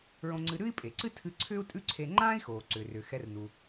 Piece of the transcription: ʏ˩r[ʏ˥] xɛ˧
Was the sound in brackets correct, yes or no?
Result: no